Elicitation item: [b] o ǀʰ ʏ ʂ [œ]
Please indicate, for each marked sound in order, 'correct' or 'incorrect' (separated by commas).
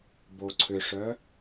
correct, correct